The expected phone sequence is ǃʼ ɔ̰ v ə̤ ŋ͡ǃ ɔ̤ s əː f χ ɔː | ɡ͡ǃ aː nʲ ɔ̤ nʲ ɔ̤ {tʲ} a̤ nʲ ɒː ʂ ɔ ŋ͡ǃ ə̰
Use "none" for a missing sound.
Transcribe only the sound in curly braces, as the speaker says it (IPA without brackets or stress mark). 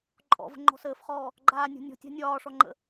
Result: tʲ